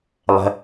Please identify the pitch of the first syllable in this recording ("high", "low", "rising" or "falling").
low